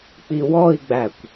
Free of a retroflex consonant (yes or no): yes